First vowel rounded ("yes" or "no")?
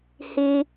no